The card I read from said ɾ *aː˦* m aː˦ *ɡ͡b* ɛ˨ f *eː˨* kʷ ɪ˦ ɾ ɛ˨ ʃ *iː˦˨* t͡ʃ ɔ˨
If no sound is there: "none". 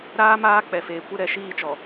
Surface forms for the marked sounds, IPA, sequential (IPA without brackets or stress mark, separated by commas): aː˦, k͡p, eː˨, iː˦˨